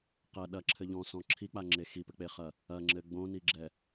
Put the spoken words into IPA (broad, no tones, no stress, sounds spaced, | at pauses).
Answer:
q ɐ ɗ ɐ ǁʰ ɘ ʎ ɔ̃ s ɔ̃ ǁʰ i k͡p a ŋ͡ǁ e x i p ɘ k͡p e χ ɐ | ɐ ŋ͡ǁ ɘ ɡ͡b õ n i ɡ͡ǁ ɛ